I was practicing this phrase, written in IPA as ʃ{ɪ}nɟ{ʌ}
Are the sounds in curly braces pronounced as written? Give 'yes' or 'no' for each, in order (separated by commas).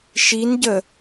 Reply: no, no